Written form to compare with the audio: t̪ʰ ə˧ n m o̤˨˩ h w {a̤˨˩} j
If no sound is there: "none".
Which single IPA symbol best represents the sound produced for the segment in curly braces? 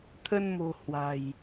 a̤˨˩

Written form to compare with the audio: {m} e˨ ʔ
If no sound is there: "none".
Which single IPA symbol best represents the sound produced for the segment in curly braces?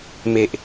m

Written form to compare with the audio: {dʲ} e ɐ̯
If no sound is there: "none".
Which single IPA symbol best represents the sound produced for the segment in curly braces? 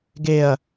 ɡ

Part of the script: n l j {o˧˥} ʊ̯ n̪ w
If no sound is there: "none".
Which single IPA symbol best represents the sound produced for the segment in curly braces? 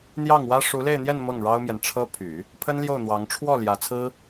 o˥˩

